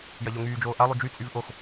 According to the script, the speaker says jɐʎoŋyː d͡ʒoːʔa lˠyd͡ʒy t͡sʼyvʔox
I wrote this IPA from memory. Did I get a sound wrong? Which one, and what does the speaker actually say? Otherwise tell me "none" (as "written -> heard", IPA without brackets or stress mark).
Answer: none